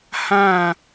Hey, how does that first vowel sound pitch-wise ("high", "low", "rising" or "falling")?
falling